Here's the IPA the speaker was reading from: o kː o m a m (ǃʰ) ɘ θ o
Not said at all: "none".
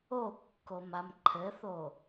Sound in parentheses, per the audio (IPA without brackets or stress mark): ǃʰ